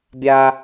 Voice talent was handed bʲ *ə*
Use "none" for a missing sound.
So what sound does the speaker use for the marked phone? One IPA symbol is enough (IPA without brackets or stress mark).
a